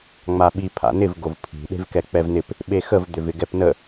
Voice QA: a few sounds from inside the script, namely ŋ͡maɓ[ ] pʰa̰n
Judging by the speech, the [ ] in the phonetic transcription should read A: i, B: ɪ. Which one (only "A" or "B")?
A